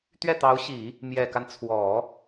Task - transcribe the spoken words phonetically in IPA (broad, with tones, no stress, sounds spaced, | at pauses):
t̪ ɥ ɛ˥˩ t̪ ɑ˧˥ ʊ̯ ɕ i˨˩˦ | m j ɛ˨˩ k a˦ n t͡sʰ w ɔ˨˩˦